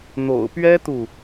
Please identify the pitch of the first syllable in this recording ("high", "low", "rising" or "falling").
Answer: low